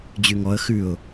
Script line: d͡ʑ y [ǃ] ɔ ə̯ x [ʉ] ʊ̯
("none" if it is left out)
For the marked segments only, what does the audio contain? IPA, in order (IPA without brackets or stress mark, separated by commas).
ŋ, ʉ